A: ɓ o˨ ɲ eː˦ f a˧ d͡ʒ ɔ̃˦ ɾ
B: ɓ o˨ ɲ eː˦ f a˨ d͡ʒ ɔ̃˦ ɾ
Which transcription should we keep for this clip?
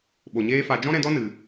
A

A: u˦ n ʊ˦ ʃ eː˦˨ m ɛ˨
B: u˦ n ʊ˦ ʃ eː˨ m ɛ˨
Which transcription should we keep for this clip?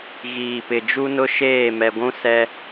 A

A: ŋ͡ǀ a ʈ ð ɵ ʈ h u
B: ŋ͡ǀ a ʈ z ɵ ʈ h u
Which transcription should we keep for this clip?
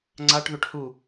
A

